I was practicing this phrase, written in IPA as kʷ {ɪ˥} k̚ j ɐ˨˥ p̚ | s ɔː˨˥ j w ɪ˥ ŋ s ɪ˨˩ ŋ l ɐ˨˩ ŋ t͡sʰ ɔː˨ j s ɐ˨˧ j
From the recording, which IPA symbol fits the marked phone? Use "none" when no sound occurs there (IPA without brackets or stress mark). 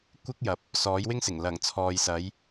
ɪ˥